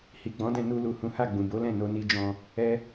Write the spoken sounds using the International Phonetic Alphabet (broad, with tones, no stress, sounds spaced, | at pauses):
h i˨ ɡ͡b ɔ̃˨˦ d ɛ̃˧ n u˧ l u˨ h ũ˨˦ h a˦˨ ɡ͡b ũ˨ b o˨˦ l ɛ̃˦˨ n o˧ n i˧ d͡ʒ ɔ̃˧ | ɛ˦